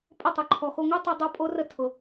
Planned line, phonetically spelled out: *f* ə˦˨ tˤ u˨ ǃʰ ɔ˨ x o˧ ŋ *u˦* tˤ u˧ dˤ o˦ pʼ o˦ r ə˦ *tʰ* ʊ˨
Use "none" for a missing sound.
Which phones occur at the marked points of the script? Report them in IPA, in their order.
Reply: pʼ, u˦, tʰ

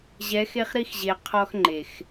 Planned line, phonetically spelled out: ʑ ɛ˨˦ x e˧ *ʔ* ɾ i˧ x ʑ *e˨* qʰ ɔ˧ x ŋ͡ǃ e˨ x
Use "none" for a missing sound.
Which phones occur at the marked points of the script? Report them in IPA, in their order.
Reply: χ, e˨

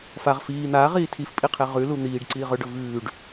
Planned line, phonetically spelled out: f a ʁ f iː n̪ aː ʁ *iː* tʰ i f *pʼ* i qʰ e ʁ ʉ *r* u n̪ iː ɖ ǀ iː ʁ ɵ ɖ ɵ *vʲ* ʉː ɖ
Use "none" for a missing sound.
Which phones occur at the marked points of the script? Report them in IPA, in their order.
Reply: iː, pʼ, l, v

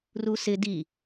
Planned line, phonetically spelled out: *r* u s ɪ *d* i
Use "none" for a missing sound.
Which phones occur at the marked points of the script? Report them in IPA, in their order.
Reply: r, d

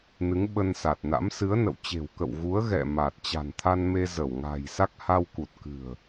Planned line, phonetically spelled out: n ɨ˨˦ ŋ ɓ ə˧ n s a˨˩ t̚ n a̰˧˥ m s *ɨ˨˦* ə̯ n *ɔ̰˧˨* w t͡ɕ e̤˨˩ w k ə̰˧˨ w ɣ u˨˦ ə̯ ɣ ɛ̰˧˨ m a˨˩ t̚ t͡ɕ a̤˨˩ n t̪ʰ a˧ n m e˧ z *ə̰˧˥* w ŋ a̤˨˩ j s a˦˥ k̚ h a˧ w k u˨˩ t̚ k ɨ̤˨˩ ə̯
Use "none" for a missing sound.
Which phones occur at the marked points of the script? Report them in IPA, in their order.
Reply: ɨ˨˦, ə̰˧˨, ə˧˩

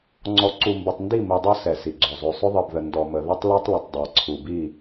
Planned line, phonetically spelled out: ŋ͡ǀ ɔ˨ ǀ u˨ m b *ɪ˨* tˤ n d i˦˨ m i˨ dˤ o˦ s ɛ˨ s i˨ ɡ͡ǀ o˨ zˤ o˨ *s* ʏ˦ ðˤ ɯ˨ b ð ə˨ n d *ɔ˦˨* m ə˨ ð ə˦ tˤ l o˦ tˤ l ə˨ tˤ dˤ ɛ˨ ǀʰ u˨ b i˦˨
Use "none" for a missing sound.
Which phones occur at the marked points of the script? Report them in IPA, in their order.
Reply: ɪ˨, sˤ, ɔ˨

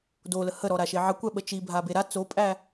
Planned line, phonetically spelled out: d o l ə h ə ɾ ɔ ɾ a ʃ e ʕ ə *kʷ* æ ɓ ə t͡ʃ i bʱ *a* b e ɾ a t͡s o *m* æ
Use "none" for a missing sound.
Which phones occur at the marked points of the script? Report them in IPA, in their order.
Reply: kʷ, a, pʼ

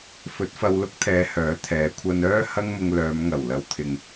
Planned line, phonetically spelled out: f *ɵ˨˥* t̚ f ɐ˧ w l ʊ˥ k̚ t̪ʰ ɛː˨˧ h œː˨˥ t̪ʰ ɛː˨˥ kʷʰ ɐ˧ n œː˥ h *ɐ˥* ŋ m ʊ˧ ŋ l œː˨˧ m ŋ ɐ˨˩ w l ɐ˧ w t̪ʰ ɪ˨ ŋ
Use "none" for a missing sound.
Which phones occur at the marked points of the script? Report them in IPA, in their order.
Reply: ɵ˨˥, ɐ˥

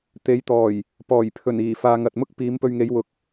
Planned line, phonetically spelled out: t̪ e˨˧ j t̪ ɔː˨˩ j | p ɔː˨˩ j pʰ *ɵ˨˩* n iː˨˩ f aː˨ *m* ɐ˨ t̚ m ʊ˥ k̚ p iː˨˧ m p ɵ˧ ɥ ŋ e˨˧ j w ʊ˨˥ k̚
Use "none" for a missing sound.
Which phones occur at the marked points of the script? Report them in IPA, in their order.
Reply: ɵ˨˩, ŋ

